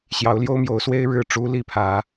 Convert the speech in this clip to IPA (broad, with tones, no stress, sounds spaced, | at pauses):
ɕ j ɑ˨˦ ʊ̯ l j o˦ ʊ̯ m j o˨˦ ʊ̯ s w e˦ ɪ̯ ɻ ɻ̩˥˨ ʈ͡ʂ u˦ l i˥˨ pʰ ä˨˦